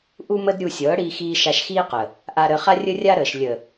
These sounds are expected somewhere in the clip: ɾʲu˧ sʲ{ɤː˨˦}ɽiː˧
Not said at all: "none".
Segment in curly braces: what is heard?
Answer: ɤː˨˦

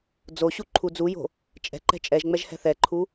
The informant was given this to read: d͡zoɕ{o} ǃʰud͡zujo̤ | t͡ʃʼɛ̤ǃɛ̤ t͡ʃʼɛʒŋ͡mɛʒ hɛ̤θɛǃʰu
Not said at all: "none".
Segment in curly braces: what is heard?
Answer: u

